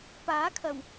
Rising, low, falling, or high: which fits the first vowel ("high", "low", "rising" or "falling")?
rising